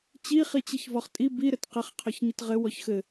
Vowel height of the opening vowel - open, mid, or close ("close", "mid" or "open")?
close